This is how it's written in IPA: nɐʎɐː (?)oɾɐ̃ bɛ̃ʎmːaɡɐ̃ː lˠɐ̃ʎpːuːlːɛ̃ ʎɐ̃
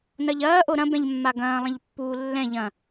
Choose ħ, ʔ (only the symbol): ʔ